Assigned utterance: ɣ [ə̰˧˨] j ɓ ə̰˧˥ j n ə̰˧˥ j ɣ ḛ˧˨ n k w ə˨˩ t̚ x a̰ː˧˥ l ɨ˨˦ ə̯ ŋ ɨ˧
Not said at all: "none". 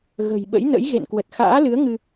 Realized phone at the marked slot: ə̤˨˩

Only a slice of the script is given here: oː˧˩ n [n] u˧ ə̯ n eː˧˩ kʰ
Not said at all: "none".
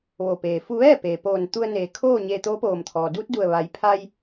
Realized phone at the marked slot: t̪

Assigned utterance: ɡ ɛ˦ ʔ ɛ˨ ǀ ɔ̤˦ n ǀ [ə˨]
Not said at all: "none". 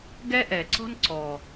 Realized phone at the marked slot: ɔ˨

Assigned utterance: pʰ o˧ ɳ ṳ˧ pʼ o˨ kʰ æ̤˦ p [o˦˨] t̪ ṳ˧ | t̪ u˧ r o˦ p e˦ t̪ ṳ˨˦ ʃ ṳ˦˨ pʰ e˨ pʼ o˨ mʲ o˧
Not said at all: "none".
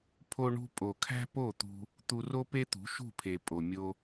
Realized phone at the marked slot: o˦˨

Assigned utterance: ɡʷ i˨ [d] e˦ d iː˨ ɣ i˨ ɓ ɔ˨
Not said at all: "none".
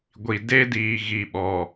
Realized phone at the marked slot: d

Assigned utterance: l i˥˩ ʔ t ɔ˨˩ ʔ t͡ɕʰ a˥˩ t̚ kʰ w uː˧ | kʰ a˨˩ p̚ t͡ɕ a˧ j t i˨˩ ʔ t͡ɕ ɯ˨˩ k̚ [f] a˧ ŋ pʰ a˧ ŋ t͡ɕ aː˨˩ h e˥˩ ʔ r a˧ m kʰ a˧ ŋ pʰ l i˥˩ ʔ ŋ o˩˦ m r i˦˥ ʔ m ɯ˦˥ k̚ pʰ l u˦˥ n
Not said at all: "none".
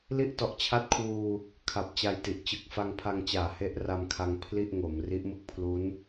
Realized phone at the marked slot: f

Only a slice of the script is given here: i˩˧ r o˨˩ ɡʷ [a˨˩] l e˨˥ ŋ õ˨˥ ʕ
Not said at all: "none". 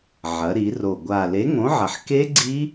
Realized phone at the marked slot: a˨˩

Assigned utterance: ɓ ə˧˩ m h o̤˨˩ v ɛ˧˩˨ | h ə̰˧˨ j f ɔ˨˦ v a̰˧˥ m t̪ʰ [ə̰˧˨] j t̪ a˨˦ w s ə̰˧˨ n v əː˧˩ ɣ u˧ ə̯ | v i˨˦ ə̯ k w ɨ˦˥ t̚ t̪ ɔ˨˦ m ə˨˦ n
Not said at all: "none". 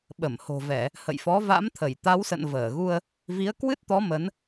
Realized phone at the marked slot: ə˧˩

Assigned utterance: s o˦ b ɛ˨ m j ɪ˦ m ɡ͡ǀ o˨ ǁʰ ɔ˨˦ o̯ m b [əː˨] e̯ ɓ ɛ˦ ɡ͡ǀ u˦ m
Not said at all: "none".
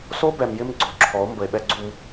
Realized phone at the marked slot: ə˨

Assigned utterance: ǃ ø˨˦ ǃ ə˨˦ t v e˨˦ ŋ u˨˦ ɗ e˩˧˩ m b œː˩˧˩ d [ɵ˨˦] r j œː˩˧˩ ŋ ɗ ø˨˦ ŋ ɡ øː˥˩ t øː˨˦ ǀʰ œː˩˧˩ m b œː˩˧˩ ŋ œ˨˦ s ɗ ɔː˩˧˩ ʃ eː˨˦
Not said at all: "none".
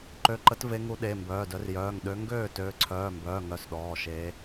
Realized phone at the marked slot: œ˨˦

